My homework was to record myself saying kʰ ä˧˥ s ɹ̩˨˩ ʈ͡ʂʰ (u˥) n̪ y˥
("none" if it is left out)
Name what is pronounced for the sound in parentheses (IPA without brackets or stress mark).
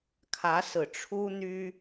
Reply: u˥